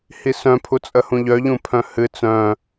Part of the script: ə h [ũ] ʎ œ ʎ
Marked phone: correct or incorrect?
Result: correct